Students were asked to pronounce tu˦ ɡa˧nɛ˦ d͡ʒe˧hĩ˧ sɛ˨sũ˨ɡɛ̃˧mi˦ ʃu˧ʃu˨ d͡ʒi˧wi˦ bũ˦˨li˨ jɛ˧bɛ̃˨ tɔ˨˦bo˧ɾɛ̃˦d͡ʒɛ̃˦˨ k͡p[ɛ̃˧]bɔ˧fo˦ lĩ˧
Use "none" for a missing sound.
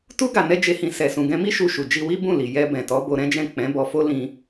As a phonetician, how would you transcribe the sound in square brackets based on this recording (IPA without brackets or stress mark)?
ɛ̃˨˦